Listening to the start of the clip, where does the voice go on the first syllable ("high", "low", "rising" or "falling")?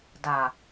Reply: low